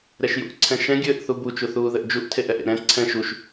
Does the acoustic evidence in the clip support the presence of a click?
yes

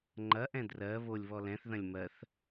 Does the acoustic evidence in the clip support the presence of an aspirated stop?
no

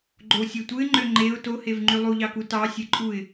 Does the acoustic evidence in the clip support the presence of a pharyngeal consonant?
no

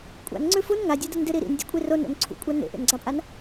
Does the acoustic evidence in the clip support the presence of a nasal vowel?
no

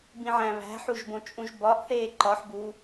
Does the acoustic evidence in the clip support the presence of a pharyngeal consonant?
yes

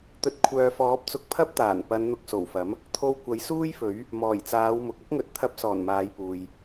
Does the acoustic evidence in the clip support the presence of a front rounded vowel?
yes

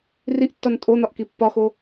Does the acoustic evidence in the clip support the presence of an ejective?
yes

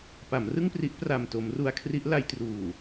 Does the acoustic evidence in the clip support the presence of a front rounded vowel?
no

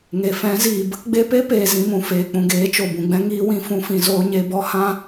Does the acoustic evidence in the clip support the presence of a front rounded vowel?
no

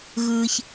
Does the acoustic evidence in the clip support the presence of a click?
no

